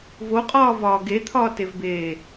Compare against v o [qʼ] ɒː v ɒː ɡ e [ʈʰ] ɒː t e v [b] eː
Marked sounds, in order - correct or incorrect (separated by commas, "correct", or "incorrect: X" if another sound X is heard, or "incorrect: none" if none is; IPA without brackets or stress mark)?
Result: correct, incorrect: t̪ʰ, correct